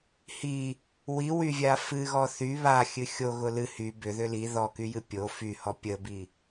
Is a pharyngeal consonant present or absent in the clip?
absent